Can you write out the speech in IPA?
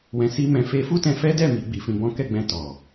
w ɛ̃˧ s i˦ m ɛ̃˧ f e˧ f u˦ t ɛ̃˧ f ɛ˦ d ɛ˦˨ m i˨˦ ɡ͡b i˧ f ĩ˧ b ɔ̃˦ k ɛ˦˨ ɡ͡b ɛ̃˧ t ɔ˨

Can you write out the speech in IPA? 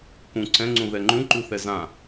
k ũ ǀʰ ɛ̃ ŋ͡ǀ ũ ð ɛ ŋ͡ǃ ũ ǃ u θ ɛ z ã

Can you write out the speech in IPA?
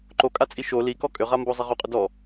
ǃ o kʼ a t͡sʼ i ʃ o l i k ɔ kʼ ʏ ʁ a m b o zˤ i ʁ o qʼ ʏ d ɔ

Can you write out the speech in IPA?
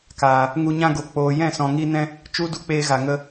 k aː˨ | ŋ u˧ ɲ ã˧ ɡ o˨ k͡p oː˨ j ɛ̃˦˨ s ɔ̃˨ ŋ i˧ n ɛ̃˦ | t͡ʃ u˦ d u˧ k͡p eː˧ ɣ a˨ ŋ ə˧

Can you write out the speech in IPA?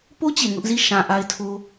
p o˦ t͡ɕ e˨ ŋ ʊ˦ ʔ z i˦˨ ʃ ã˨ ʔ a˦ ɪ̯ tʰ o˦

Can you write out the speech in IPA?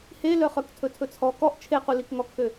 h e l œ χ œ k tʰ ɵ tʰ ɵ t͡sʰ ɔ k ɔ ʔ t͡ʃʰ e q u l i k ŋ ɔ k x ø

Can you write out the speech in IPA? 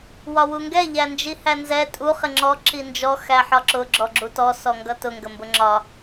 w ɒ w u ŋ ɡ ɛ ʎ æ n d͡ʒ i h æ n z ɛ tʼ u χ ɪ ŋ͡ǁ ɔ ǁ i n d͡ʒ ɔ x æ ħ ɒ ǁ ʊ ɡ͡ǁ ɔ ɡ͡ǁ u t ɔ s ɔ ŋ ɡ ʌ t ʊ ŋ ɡ ə m b ʊ ŋ͡ǁ ɒ

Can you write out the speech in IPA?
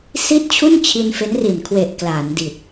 s i˥˩ t̚ t͡ɕʰ u˥˩ n t͡ɕʰ i˧ n f e˦˥ n r i˨˩ n kʰ w e˨˩ ʔ k l aː˩˦ n d i˨˩ t̚

